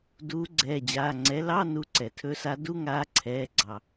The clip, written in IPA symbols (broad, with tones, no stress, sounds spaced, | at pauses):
d uː˨˦ ɡ͡ǀ ɛː˩˧˩ d͡ʑ aː˩˧˩ ŋ͡ǀ ɛ˨˦ l ɑ˧˥˧ n u˨˦ ǀ ɛ˩ tʰ ɵ˨˦ s a˨˦ d u˧˥˧ ŋ aː˨˦ ǀʰ ɛː˩˧˩ ɡ͡ǀ ɑ˩